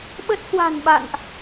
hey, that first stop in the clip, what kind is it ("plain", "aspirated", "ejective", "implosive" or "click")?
implosive